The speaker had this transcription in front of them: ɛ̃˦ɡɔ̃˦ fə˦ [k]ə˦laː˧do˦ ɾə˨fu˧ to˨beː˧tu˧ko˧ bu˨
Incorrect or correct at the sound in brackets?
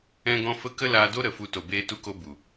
correct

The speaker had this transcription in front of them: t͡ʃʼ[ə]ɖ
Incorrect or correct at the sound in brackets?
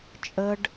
correct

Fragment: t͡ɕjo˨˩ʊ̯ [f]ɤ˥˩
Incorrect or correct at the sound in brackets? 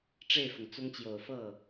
correct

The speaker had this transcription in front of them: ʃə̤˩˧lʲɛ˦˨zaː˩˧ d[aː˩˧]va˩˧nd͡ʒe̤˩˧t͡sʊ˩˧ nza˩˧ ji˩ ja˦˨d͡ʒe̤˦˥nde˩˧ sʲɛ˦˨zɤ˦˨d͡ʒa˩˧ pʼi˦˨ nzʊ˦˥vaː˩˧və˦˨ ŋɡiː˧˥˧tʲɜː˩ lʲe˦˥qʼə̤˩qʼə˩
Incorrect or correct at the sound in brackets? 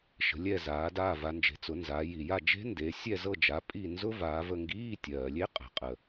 incorrect: aː˦˨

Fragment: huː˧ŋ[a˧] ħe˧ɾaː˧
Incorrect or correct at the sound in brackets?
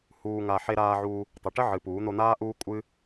correct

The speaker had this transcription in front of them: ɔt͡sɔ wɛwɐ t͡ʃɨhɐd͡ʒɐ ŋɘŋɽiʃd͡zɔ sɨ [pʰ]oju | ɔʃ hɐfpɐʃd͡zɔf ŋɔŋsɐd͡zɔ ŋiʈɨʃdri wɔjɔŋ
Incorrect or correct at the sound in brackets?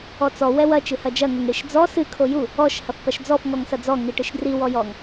incorrect: kʰ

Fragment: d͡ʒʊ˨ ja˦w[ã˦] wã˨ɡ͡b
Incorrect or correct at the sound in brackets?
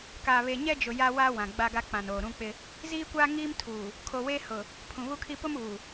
incorrect: a˦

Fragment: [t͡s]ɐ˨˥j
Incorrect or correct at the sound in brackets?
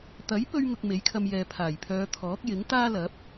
incorrect: t̪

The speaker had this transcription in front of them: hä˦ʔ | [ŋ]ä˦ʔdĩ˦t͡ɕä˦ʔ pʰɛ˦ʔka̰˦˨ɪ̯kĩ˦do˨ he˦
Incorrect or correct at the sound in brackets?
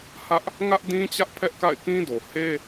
correct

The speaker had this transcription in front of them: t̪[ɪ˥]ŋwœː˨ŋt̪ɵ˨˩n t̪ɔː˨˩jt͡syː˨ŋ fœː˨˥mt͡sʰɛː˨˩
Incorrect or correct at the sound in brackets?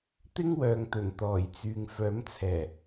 correct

